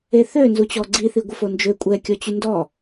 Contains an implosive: no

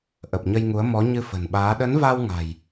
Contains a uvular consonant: no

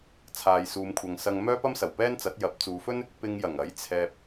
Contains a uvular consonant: no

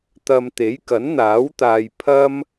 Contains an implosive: no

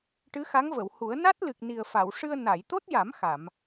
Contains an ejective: no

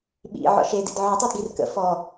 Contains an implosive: yes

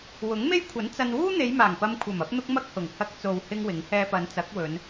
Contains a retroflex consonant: no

